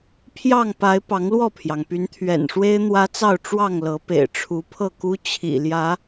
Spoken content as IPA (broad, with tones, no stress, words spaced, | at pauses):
pʰjɑ˥˨ŋpa˨˦ɪ̯ pɑ˨˦ŋlwɔ˥˨pʰjɑ˩ŋpy˨˦n t̪ʰɥɛ̰˨˩nʂwe˦ɪ̯ n̪wä˦t͡sɑ˥˨ʊ̯ ʈ͡ʂwɑ˥˨ŋlɤ˨˦pḛ˨˩ɪ̯ ʈ͡ʂʰu˨˦pʰɤ˥˨ku˦ t͡ɕʰḭ˨˩ljä˨˦